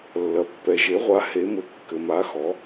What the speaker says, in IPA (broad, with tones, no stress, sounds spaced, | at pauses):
lː ɐ˩ pː ɛ˩ ʒ e˩˧ ʁʷ a˩˧ h e˩˧ m ɘ˩˧ kː ɘ˩ m a˩˧ x ɔ˩˧